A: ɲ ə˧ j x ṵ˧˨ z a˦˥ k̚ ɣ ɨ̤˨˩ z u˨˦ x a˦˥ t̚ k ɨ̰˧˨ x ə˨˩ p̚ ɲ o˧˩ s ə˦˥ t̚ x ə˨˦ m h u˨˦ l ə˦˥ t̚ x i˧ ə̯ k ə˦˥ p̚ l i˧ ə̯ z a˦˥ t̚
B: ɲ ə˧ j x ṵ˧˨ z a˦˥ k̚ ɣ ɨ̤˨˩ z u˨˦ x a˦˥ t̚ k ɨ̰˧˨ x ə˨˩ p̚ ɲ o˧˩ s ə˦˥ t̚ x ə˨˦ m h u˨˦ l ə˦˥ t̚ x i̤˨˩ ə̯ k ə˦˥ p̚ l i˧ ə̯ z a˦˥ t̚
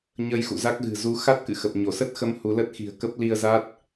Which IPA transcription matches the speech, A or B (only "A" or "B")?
B